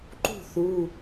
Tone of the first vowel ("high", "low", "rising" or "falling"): falling